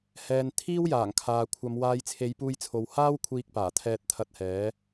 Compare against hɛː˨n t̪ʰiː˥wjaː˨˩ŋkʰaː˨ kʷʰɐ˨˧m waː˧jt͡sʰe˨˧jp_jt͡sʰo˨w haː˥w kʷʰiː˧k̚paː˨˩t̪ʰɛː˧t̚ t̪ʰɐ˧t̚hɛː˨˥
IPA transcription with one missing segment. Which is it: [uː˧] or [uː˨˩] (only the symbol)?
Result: uː˧